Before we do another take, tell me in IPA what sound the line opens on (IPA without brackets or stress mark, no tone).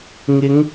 ŋ